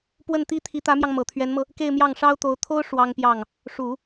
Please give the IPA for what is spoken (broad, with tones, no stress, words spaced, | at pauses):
pwə˥˩nt̪i˥t̪ʰi˧˥ t̪ä˧˥mjɑ˧ŋ mɤ˨˩t̪ʰɥɛ˧˥nmɤ˧ | ke˥˧ɪ̯mjɑ˥˩ŋʂɑ˥ʊ̯t̪o˧˥ʊ̯ t̪ʰo˥ʊ̯ ʂwɑ˥ŋpjɑ˥˩ŋ | ʂu˨˩˦